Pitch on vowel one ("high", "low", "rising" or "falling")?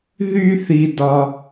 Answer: high